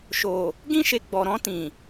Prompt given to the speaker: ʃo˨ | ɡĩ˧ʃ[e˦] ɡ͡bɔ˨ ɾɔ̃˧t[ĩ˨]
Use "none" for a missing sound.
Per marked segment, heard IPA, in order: e˨, ĩ˨

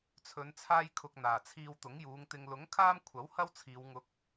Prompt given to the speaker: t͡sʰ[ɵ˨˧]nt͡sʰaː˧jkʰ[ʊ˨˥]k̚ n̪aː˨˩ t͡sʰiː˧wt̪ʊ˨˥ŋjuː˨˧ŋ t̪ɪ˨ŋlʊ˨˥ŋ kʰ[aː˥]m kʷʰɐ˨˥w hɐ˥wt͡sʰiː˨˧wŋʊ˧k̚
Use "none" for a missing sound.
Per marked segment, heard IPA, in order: ɵ˨˧, ʊ˨, aː˥

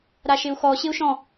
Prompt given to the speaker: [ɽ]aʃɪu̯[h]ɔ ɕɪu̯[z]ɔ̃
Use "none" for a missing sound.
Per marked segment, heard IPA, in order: ɾ, x, ʃ

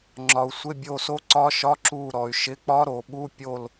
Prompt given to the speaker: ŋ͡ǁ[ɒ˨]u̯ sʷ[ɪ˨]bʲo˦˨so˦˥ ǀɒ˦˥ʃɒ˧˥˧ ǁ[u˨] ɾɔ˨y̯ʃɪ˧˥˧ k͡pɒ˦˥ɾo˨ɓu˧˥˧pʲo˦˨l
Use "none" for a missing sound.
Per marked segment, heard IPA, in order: ɒ˨, ɪ˧˥˧, u˦˨

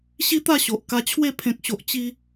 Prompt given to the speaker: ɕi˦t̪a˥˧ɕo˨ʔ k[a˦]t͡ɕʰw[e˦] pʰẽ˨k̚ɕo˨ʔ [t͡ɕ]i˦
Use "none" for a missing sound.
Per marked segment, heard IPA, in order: a˧, e˥˧, t͡ɕ

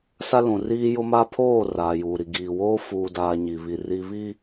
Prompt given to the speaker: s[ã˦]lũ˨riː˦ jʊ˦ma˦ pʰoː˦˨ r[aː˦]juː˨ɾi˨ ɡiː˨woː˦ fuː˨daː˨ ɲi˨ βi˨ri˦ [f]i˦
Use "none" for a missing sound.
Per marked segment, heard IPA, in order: a˦, aː˨, β

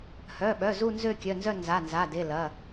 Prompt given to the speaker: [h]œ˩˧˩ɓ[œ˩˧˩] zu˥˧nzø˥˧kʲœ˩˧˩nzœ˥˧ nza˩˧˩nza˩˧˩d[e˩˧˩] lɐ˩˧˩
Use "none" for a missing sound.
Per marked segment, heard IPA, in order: h, œ˩˧˩, e˩˧˩

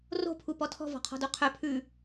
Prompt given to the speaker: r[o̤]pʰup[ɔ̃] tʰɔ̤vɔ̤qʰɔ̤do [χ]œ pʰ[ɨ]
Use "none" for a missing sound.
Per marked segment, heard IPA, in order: o̤, ɔ, qʰ, ʉ

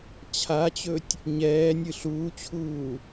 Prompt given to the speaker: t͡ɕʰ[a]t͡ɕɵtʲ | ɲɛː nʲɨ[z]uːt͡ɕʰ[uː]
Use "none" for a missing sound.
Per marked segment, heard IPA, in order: a, ɬ, uː

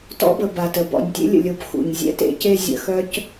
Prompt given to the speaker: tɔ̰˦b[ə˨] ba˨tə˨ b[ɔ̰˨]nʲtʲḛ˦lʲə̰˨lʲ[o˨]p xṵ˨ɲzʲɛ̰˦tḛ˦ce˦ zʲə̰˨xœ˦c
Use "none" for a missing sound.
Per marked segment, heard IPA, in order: ə˨, ɔ̰˨, o˨

